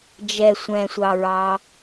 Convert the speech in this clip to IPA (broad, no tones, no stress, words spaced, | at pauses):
d͡ʒɛ sʷɛ̃sʷɑɹɑ